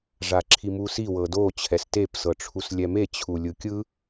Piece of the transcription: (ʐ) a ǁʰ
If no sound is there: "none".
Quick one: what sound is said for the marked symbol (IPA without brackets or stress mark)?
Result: ʐ